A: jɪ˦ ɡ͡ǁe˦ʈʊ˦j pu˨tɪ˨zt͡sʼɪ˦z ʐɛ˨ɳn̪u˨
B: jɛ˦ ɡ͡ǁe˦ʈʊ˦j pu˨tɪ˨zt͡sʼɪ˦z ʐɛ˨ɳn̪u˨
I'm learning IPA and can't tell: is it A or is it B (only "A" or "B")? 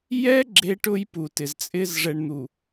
B